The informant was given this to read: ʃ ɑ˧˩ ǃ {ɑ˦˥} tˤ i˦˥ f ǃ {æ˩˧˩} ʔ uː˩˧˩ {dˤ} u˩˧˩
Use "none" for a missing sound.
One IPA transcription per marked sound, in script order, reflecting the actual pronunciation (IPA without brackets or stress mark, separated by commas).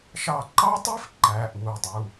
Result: ɑ˦˥, æ˩˧˩, dˤ